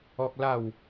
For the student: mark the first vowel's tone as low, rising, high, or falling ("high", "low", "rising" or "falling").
high